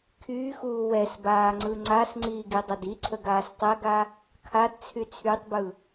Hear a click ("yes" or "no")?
yes